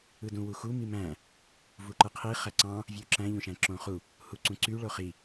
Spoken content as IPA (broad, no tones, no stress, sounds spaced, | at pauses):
ɯ d ũ w u x u m i m æ̃ | v u ǃ ɯ qʰ i χ æ ǀ ɑ̃ | vʲ u ǁ æ̃ ʎ õ ʃ æ̃ ǁ õ χ u | h u ǀ ũ ǀ y ɭ o χ i